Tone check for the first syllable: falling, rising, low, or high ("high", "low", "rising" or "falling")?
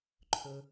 low